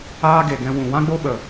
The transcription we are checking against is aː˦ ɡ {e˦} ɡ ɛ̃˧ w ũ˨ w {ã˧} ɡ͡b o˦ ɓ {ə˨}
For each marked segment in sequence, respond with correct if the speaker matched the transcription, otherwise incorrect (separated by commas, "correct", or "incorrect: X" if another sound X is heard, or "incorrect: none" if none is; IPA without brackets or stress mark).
incorrect: e˨, incorrect: ã˦, correct